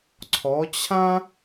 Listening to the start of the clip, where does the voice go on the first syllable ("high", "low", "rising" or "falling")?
rising